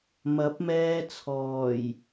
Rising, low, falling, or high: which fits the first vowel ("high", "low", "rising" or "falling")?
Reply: rising